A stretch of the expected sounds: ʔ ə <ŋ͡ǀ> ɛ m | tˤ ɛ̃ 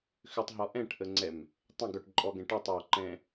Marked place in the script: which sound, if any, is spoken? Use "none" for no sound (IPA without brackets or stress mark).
ŋ͡ǀ